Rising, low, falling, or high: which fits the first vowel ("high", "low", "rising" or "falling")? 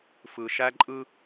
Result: low